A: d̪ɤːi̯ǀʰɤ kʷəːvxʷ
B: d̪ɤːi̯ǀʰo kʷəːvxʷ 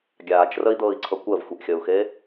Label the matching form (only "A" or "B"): A